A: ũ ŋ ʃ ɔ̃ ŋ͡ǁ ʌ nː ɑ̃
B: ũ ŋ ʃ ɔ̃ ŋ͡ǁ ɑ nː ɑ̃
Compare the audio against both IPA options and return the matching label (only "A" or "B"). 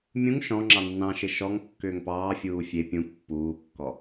B